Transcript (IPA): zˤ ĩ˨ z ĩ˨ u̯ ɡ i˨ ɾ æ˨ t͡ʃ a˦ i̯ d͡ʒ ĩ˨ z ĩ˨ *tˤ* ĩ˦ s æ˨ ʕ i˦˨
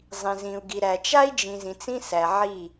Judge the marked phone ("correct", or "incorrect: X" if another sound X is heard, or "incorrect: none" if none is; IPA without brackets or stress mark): incorrect: t͡s